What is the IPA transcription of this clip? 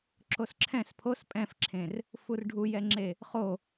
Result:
ǁ o s ǁʰ ɛ̃ s pʰ o s pʼ ɛ̃ f ǁʰ ẽ r | f u r ɖʱ u j ɛ ŋ͡ǁ e | χ o

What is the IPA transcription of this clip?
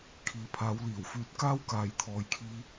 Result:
kʰ iː˨˥ pʰ aː˨˧ w l iː˨˩ w f yː˧ t̚ k aː˥ w k aː˨ j t̪ʰ ɔː˨ j kʰ iː˧

